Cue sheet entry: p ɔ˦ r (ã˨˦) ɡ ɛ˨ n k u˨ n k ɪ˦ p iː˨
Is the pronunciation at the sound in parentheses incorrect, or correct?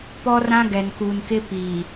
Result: incorrect